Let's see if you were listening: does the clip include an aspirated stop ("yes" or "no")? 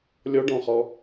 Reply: no